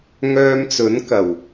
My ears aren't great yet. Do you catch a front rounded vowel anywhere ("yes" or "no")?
yes